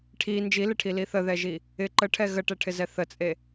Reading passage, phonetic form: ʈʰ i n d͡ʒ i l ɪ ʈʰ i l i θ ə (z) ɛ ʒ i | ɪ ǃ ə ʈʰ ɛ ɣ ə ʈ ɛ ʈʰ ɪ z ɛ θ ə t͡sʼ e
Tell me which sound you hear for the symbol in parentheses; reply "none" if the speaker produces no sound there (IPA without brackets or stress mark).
ð